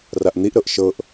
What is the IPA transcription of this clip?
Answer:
r a ʔ n̪ i ʔ ɾ ɤ ʔ ʃ ɤ ʔ

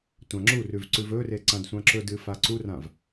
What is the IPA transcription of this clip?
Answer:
tʷ ã ŋ͡ǁ u r ʉ v ǀ ʉ v ɵ r e ǀ ã d sʷ ã ǁ ɵ d ɨ f a ǀ u r ã v

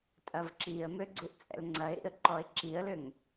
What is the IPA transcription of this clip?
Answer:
tʼ ɐ v ǁ i ə̯ m ø ɡ͡ǀ u ʔ t͡sʼ ɛ̰ l ŋ͡ǀ ɐ ɪ̯ ɾ ḭ ə̯ ǃ ɔ ɪ̯ ǁ i ə̯ l ʏ ŋ

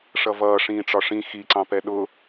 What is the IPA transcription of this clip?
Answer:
ʂ ʌ v ʌː ʂ ĩː ʈ͡ʂ ɒ ʂ ĩ x i ǀ ɑ̃ p ɛ ɗ ʊ

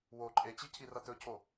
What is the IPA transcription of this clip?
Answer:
w o ǃʼ e t͡ɕ i cʰ i r ɐ t̪ ɵ cʰ o

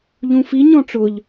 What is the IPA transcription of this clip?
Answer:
ʎ ũ f i ɲ ɔ̃ ʈ͡ʂ ʊ ʎ

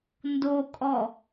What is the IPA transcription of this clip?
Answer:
n d o kʼ ɔ

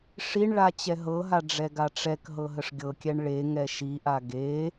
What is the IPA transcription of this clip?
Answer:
ʂ i ɳ ɭ a t͡ɕ ɛ ɦ ɤ ɦ a ɖ͡ʐ ɛ ɡ a ʈ͡ʂ ɛ k ɦ ɤ ɦ ə ʂ ɡʲ ɤ kʲ ɛ ɳ ɭ e ŋ ɛ ʃ i ʔ a ɡ e

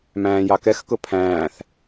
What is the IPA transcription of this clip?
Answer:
m æ̃ː j ɑ k ɛ x k ʊ pʰ æ̃ː θ

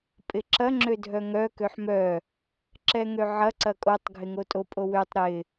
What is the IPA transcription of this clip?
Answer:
pʼ ɪ ǁ ɐ ŋ͡ǁ ø dʱ œ ŋ œ k ø ħ m œ | ǁ ɛ ŋ ø ʕ ɐ ǀ ɐ kʼ o tˤ ɡʱ ɪ ŋ o tʼ o pʼ o w ø tˤ ɾ ɪ

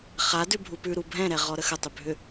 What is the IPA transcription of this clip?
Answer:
χ a d ʉ bʱ u p ʉ ɾ u bʱ ɛ̃ ɾ ɛ ʁ ɔ ɾ ə x ə tˤ ʏ bʱ ʏ

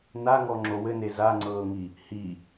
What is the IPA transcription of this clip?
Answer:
n a ŋ ɔ ŋ͡ǁ o w ɘ n e z a ŋ͡ǀ ɤː ŋ i | h i

